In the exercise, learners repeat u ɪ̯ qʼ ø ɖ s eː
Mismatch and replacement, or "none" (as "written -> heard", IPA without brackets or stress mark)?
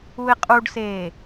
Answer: ø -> u